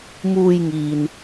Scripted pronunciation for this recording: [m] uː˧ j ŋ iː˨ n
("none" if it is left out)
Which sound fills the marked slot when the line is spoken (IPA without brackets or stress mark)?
m